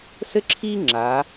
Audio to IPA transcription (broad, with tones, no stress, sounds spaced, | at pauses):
s ɘ˥ ǁʰ iː˥ ŋ͡ǁ a˩˧